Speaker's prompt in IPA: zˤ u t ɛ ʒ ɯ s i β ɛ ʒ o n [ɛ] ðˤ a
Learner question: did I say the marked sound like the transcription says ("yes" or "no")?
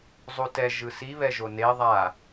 no